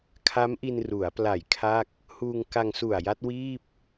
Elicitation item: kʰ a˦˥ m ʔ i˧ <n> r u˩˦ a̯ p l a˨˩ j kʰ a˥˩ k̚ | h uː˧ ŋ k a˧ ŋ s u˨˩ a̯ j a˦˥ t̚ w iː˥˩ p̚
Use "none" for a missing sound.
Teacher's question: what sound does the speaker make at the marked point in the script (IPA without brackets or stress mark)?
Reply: n